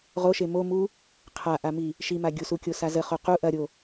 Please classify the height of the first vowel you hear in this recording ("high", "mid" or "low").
mid